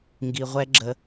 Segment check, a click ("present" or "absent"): present